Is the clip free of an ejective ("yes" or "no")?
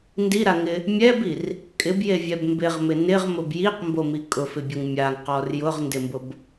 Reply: no